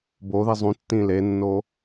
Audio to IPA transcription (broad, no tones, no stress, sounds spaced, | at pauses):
b o ð i zˤ ũ tː ĩ l e nː o